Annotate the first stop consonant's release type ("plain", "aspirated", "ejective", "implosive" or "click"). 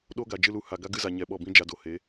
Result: implosive